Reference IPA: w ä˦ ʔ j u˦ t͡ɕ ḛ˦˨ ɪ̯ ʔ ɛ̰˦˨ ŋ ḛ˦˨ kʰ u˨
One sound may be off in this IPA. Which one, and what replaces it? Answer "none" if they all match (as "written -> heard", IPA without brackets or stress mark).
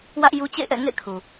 none